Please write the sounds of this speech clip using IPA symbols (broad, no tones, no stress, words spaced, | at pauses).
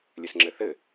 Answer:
lʲɘsŋ͡ǁɘθɘ